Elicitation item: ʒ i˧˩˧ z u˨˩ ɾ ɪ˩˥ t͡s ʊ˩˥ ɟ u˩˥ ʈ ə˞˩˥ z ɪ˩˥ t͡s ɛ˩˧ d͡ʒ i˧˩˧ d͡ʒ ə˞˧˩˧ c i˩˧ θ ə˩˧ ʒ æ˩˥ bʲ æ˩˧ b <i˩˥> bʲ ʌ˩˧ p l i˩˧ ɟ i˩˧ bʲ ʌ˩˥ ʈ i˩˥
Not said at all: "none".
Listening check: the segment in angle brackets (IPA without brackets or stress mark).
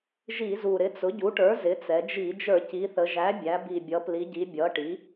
i˨˩